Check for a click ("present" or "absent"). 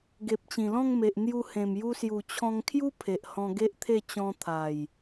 absent